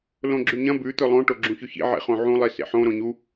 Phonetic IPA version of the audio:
lõɡ͡ǁʉɲɐ̃ bʉ t̪ɵlˠõ ʈoɡ͡ǁũçɵçḭ ʕḛχõʕũ lˠisḛħõ ɾõɲu

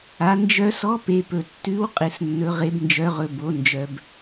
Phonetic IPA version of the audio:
a˩˧ nd͡ʒœ˧sɔ˧˥ pe˩˧pɵ˩tːʉ˧˥wqʼɪ˩˧s nːɵ˩˧ʁe˩˧bnd͡ʒœ˩˧ʁɵ˩ bo˩˧ nd͡ʒœ˩b

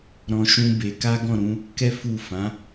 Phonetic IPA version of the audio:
ɾɔ̃˧ ʃũ˧ be˧ka˦ ɡɔ̃˦˨ɾũ˧ | kɛ˦fu˦˨ fã˨˦

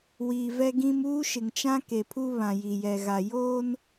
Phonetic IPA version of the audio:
wiː˨vɛ˦ɡĩ˦m uː˦ʃɪ˨ŋt͡ʃã˦ ke˨pʰu˦ βã˨ji˨jɛ˨ɣa˨ joː˦n

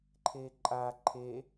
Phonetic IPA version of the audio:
ǃʰeǃʼa ǃʰe

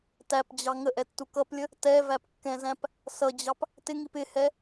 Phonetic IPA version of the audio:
tæpd͡ʑɑ ŋəʔɛtːu kʌplʲə | tɛvæpkːɛ̃zæ̃p | sʌd͡ʑɑp | tɪŋip ɪhɛ

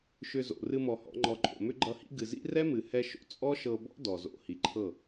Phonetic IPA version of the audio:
ʃʏ˧zo̰˨ rɨ˧mɔ˨ hɔ̰˨˦ŋ͡ǃɔ˧ǃʼo̰˨ mʏ˦ɡ͡ǃʌ˧hḭ˦ ɡɨ˨zḭ˦ rɛ˦mɨ˨hɛ˧ʃo̰˨ t͡sʼɔ˦ʃɤ˧bɔ̰˦ dɔ˨zo̰˧ hi˨ǃʰɤ˦˨

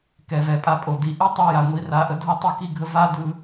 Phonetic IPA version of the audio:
kɛ˨vɛ˨pʼa˧pʼo˨ di˨ʔi˦tˤa˧ja˨ ŋʷi˧ra˧ʔə˦ dʱo˦tˤɯ˧ ki˦ɡʱə˦ va˦ dɯ˦

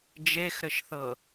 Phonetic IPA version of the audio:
d͡ʒexɾɘʃθɤ

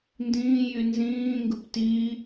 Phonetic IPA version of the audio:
ndĩːjy nzĩːŋɡɯp tiː

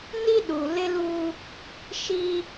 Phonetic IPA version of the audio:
ni˦ ɗu˨lɪ˦lu˦ | ʃi˦

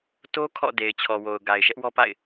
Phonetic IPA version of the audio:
to˦ kʰɔ̰˦˨de˨ɪ̯t͡ɕʰɔ˨wo˨ʊ̯ ɡa˨ɪ̯ʃɛ˦ʔ wɔ˦pa̰˦˨ɪ̯

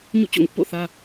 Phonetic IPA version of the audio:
ɲṵ˦˨ t͡ɕo̰˦˨ŋʊ˦ʔ po̰˦˨θä˦

